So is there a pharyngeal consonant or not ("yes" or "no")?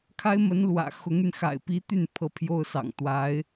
no